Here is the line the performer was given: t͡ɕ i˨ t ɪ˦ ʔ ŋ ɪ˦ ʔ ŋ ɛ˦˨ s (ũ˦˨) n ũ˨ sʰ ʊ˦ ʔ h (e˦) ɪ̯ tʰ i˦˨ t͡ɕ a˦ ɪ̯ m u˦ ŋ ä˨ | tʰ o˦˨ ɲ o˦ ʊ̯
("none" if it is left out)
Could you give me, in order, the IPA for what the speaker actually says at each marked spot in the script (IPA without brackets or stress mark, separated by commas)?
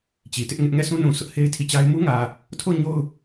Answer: ũ˦, e˦